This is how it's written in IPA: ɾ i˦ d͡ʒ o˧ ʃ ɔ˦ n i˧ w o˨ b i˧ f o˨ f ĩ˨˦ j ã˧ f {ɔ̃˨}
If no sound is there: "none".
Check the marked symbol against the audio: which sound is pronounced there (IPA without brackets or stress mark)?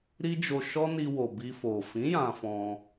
ɔ̃˧